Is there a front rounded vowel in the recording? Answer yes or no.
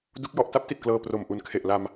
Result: no